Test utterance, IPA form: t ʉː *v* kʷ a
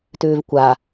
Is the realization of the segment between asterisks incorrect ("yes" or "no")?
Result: no